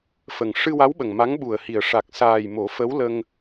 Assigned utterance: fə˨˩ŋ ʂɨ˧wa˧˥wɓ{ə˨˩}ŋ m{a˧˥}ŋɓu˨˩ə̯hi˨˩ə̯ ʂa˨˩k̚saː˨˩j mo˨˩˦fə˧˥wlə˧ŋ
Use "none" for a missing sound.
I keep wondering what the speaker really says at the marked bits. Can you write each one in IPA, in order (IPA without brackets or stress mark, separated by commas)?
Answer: ə˨˩, a˧˥